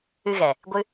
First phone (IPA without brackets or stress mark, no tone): ɨ